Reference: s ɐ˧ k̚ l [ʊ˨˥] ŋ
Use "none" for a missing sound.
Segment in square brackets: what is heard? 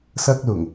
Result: ʊ˨˩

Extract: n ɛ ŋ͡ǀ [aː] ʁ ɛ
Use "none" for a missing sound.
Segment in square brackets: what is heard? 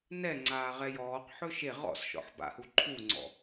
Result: aː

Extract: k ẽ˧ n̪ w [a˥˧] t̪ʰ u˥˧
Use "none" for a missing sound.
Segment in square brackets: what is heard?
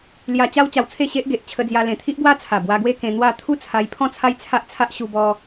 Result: a˥˧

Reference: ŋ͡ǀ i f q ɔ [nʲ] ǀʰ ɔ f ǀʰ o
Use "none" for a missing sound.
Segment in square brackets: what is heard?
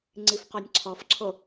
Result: nʲ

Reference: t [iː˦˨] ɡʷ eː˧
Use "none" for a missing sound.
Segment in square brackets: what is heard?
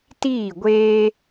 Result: iː˦˨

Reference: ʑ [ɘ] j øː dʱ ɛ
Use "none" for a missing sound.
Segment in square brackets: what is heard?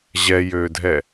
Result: ɛ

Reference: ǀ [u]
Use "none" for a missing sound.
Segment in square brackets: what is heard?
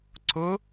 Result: ʊ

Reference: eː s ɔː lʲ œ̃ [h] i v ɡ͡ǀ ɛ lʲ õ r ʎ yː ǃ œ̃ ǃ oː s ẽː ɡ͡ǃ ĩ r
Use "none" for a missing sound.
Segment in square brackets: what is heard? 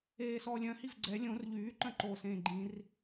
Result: h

